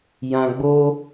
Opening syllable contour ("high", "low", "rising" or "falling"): low